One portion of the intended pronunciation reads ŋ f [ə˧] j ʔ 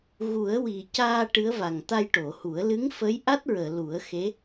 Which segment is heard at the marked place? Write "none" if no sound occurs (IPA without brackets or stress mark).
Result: ə˧˥